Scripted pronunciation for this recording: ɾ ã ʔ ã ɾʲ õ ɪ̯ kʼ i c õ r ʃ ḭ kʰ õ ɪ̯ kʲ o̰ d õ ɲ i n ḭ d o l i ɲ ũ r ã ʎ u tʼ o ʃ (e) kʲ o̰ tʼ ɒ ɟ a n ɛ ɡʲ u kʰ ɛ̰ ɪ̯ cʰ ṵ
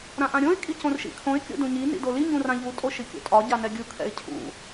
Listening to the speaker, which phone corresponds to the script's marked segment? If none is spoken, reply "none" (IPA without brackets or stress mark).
i